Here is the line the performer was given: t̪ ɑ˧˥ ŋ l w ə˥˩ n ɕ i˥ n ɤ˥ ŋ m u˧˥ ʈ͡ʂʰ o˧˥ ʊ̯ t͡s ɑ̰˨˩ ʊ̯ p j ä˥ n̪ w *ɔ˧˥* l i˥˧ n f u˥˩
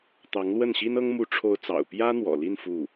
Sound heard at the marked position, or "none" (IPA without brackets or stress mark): ɔ̰˨˩